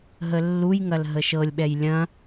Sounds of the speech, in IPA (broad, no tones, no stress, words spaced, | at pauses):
ɦəlːujŋɐl ɦəʃɤlʲɓɛj lʲɐ̃